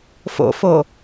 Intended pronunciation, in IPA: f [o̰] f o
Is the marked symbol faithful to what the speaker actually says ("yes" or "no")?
yes